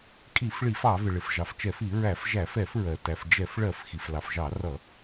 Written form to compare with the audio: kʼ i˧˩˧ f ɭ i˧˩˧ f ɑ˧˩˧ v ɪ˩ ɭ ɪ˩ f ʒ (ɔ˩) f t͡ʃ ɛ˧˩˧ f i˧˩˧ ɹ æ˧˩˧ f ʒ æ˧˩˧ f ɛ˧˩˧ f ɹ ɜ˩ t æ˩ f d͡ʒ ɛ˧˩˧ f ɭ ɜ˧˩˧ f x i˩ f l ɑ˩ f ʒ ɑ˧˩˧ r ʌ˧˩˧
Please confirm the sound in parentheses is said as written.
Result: no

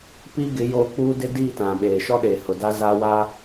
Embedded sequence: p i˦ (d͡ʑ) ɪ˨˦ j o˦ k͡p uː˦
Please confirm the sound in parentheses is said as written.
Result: no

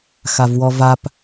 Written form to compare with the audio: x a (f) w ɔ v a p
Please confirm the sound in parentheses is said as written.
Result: no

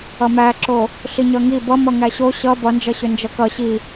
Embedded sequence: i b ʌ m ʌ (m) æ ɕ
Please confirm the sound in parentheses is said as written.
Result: no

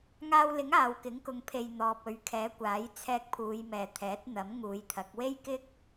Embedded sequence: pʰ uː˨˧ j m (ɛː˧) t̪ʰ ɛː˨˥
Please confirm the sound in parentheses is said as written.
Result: no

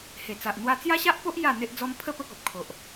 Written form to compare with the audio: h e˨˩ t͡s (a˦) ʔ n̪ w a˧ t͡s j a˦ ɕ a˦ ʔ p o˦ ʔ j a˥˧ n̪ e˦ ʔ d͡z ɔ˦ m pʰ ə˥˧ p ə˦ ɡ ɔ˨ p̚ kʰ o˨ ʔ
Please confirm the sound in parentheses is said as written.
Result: no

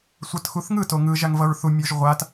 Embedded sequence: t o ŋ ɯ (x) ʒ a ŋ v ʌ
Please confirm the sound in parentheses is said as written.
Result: no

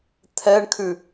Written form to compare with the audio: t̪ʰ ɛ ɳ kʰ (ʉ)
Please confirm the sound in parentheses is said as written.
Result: yes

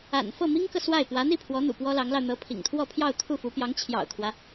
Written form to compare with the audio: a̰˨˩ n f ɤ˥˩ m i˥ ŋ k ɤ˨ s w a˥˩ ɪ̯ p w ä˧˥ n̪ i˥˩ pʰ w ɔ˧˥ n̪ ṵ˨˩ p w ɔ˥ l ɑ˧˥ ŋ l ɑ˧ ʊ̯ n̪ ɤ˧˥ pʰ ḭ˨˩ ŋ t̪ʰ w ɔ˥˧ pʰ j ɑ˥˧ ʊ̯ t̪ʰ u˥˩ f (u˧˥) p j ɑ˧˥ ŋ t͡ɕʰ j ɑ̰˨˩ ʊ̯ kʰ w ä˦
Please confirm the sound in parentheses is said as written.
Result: yes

